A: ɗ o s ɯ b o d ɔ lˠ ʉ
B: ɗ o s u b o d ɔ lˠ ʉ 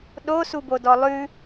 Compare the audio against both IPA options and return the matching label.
B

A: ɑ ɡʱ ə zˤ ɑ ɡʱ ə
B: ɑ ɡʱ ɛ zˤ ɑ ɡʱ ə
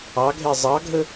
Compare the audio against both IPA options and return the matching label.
B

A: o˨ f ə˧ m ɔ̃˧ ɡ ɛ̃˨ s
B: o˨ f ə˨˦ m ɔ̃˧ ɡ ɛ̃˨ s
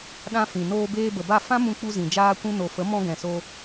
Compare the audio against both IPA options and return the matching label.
B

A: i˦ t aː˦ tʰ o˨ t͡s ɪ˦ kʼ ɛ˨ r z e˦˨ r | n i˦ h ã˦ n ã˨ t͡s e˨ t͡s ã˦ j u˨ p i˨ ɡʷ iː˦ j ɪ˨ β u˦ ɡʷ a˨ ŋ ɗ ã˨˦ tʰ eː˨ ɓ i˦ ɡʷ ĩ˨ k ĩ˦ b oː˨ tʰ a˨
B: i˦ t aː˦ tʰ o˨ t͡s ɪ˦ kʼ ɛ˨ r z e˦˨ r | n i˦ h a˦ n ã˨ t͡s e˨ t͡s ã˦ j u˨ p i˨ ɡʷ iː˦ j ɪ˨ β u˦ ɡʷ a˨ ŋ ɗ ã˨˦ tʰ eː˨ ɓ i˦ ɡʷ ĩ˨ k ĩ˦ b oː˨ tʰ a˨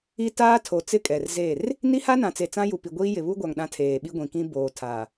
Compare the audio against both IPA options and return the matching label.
B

